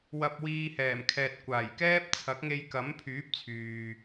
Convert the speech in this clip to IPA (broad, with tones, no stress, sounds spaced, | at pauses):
w ɐ˧ p̚ w iː˧ h ɛː˨˩ m kʰ ɛː˨ t̚ kʷ aː˨˩ j k ɛː˥ p̚ t͡sʰ ɐ˨˥ k̚ ŋ e˧ j k ɐ˨˥ m pʰ yː˨˥ p̚ t͡sʰ yː˨